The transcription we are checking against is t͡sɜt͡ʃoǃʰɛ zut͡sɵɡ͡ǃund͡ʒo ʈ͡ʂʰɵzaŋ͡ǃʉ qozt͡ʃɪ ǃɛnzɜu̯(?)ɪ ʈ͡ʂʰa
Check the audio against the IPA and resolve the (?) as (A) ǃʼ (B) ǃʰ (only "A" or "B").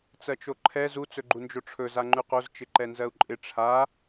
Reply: A